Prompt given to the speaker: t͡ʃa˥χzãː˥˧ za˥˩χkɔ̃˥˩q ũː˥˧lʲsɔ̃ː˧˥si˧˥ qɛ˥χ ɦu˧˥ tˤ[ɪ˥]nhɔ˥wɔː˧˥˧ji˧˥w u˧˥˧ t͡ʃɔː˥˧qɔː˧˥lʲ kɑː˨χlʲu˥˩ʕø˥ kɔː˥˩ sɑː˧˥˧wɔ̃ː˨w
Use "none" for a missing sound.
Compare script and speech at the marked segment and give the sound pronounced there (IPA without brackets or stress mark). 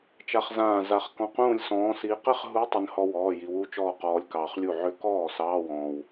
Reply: ɪ˥